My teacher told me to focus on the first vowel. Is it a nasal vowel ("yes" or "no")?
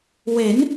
no